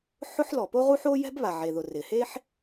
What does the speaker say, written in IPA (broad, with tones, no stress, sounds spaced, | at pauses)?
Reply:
ħ ʊ˥ ħ l ɔ˩ p o˥ ʁ u˥ ħ o˥ j ɛ̤˥ b β a˩ ʕ e˩ ð ʊ˩ r ɪ˩ h e˥ ħ